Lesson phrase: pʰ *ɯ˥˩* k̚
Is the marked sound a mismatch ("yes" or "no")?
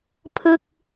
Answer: no